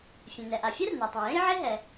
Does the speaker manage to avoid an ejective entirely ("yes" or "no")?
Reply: yes